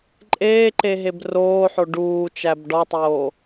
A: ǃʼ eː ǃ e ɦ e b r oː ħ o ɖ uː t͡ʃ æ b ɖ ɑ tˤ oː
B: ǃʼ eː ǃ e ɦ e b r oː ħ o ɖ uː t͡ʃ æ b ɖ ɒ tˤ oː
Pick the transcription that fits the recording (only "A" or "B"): B